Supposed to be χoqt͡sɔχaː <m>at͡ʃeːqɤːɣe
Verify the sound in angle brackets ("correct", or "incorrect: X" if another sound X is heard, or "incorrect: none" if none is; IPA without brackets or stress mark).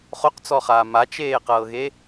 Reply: correct